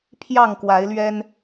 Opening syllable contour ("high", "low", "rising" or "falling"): falling